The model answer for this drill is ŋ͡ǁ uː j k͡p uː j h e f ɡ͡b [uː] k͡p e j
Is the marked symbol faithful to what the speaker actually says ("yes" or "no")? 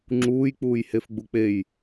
no